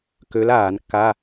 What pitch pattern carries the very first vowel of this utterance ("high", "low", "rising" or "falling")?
rising